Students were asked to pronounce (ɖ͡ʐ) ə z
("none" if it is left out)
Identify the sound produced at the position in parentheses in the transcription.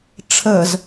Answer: ʈ͡ʂʰ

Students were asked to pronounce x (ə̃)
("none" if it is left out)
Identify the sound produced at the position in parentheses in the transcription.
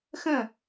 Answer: ə̃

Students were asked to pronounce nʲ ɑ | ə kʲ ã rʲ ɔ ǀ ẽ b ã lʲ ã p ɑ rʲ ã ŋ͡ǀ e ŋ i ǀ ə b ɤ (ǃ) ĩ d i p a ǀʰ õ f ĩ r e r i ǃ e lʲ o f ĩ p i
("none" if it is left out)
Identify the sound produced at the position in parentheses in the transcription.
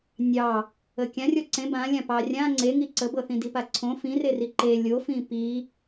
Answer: θ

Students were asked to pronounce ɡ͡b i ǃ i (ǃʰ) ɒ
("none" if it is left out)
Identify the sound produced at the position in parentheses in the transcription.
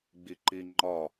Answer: ŋ͡ǃ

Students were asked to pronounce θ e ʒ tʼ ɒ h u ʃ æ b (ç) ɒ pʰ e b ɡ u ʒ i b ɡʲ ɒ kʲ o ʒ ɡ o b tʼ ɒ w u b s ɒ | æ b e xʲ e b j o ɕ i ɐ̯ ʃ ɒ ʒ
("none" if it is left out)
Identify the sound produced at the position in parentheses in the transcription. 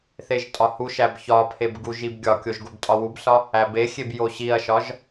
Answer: ç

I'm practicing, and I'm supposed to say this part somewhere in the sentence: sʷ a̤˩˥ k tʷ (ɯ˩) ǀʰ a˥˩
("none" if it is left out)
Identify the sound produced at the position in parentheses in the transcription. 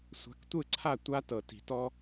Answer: ɯ˥˩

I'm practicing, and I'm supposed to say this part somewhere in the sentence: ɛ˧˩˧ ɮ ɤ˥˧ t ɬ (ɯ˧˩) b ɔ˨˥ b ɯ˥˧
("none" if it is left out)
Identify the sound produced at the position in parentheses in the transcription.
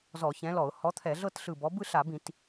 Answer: ɯ˧˩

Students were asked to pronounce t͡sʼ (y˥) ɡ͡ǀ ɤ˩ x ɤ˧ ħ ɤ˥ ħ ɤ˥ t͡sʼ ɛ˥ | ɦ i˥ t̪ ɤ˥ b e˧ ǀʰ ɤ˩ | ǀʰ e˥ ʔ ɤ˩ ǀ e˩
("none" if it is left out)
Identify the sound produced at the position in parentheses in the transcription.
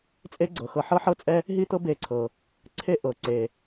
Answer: e˥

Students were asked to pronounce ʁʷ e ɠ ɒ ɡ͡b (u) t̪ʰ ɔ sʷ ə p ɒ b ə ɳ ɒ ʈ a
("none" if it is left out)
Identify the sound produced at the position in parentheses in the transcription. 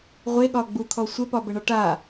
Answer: u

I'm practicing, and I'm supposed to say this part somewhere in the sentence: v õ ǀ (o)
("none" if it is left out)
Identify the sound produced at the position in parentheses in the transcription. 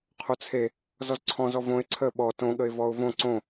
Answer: õ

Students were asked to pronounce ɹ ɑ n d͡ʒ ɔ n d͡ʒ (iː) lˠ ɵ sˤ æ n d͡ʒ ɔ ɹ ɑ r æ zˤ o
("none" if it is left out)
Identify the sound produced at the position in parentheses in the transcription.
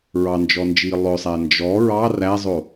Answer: iː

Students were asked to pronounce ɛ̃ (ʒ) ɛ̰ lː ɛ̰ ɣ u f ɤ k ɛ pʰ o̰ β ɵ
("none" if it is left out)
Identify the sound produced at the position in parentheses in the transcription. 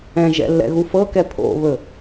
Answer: ʒ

